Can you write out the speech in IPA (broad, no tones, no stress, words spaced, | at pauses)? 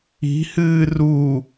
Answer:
i̤hɨː ru